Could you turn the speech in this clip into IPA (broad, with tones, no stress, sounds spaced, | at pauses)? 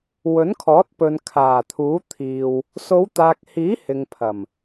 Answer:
w ɵ˨˥ n kʰ ɔː˨˥ t̚ p ɵ˨ n kʰ aː˨˩ t̪ʰ uː˨˥ t̪ʰ iː˧ w | s o˨˧ w t̪ aː˨ k̚ h iː˨˥ h ɪ˨ ŋ pʰ ɐ˨˩ m